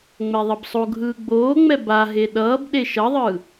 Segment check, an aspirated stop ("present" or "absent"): absent